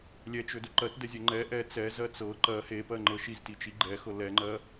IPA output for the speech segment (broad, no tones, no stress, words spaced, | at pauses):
lʲɛt͡ʃɵdɵ ǃɜtdɛzʲɜ ŋ͡ǃɛ ʔɛ t͡sɛzɜ t͡sɤ ǃɜ hepɜŋ͡ǃɤ ʃiztit͡ʃi ɡ͡ǃɛxɤ lɛŋ͡ǃɜ